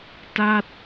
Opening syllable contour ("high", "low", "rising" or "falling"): falling